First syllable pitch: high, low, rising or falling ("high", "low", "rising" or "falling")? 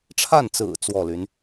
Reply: falling